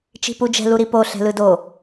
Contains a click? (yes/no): no